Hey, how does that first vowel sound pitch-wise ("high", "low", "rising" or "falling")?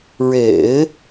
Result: low